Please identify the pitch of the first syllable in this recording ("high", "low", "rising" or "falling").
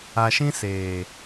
low